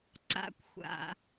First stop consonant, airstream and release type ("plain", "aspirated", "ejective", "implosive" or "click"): click